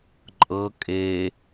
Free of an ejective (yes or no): no